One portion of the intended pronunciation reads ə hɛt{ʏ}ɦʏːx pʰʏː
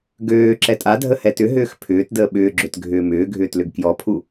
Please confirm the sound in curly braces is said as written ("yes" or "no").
yes